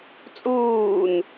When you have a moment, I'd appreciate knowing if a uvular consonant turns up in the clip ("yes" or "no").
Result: no